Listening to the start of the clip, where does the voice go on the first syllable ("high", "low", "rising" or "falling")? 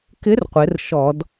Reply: rising